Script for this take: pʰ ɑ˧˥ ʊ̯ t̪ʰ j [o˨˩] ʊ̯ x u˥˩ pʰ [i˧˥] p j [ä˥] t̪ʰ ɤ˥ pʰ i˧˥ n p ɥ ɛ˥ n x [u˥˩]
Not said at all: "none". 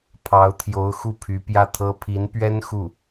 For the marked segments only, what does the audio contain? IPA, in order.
o˧˥, y˧˥, ä˥˩, u˥˩

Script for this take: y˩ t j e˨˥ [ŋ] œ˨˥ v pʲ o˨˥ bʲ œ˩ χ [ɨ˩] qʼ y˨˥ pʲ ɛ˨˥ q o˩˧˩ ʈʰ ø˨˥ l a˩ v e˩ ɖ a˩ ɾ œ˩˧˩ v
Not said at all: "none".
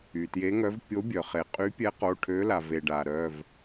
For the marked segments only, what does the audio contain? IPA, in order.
ŋ, e˩

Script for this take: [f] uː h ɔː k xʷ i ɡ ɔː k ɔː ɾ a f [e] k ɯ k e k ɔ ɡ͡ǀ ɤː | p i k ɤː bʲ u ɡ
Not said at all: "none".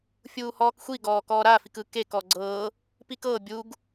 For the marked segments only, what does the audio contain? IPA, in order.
fʲ, i

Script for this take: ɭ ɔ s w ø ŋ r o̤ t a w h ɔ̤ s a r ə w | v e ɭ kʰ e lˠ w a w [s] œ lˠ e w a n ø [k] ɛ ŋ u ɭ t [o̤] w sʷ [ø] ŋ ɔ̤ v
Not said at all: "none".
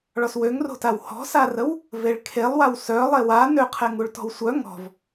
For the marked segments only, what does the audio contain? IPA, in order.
s, qʰ, ɔ̤, œ

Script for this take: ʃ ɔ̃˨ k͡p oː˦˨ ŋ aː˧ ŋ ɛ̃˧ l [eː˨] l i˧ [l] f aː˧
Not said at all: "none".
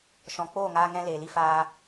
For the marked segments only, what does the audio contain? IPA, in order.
eː˨, none

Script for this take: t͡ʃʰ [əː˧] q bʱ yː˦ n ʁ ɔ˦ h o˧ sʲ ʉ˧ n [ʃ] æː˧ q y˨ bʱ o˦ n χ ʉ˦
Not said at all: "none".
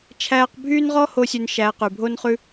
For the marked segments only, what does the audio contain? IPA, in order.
æː˧, ʃ

